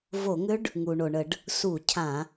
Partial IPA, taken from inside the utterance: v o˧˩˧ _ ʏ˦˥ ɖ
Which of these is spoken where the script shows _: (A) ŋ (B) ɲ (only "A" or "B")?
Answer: A